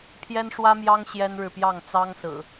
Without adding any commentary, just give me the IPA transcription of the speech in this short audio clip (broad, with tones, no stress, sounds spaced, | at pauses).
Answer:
pʰ j ɛ˦ n ʂ w ä˦ m j ɑ˦ ŋ ɕ j ɛ˦ n ɻ ɻ̩˨ p j ɑ˥˨ ŋ t͡s ɑ˦ ŋ s ɹ̩˨˩